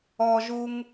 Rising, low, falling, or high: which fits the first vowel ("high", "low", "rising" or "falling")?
high